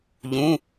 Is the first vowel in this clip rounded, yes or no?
yes